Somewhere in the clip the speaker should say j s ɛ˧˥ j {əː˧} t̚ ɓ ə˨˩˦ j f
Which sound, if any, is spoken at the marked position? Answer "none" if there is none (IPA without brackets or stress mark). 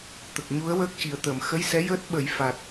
əː˦˥